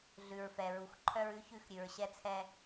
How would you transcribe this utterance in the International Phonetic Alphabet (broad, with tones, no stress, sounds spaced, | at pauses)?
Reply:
ɮ ʉ˨ ɹ f ɛ˨ ɹ u˨ x ǃʰ œ˦ ɹ ʉ˦ ç ʉ˦˨ x ɾʲ ʉ˨ ɹ ɕ ɛ˦ t͡sʰ ɛ˦